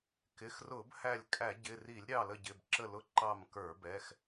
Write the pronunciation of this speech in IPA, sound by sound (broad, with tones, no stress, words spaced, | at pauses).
kɪ˩˧˩xrʊ˧˩˧bhæ˧˩lʲ kʼæ˧˩˧ɟɪ˩˧˩ ri˧˩˧lʲɾʲɑ˧˩ lə˧˩ɟɪ˩˧˩bǁə˧˩lʊ˧˩ ǃɑ˧˩mkə˞˧˩˧bɛ˩˧˩x